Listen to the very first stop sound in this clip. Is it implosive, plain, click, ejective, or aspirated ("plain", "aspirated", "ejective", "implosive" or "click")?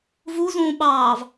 implosive